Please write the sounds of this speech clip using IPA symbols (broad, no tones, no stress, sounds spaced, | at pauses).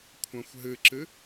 kʷʰ ã xʷ ɦ ɨ ǁ ɨ